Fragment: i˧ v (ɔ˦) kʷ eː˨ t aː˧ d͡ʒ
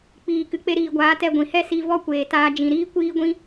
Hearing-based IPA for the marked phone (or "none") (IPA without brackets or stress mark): ɔ˦